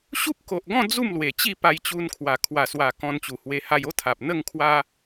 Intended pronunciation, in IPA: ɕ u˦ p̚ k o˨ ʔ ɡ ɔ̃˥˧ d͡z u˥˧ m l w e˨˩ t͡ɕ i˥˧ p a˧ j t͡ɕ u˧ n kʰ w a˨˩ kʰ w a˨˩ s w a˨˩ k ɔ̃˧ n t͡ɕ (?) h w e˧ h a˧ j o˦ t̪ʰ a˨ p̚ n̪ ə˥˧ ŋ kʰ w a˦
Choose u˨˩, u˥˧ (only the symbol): u˨˩